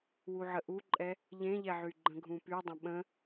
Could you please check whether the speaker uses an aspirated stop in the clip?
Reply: no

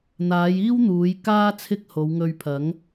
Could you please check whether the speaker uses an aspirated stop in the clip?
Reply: yes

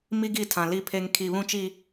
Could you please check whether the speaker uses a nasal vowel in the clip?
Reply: yes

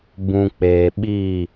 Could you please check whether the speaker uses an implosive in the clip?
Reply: yes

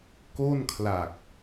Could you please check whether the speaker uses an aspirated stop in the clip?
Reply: yes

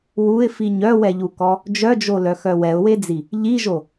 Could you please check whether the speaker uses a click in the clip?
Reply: no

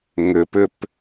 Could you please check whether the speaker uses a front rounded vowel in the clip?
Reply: yes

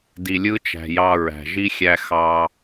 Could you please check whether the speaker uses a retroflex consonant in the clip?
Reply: no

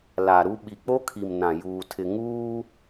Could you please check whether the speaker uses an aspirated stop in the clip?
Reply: yes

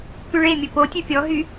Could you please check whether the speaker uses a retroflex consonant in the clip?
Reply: yes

